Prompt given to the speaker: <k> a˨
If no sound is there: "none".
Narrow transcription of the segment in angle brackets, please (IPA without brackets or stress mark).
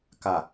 k